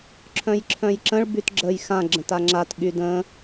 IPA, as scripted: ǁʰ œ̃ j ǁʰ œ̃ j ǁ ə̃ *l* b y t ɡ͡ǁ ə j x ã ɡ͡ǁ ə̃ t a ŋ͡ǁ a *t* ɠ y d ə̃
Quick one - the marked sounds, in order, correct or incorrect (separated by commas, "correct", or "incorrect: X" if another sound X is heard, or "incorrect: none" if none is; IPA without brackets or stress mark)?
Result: incorrect: ɭ, correct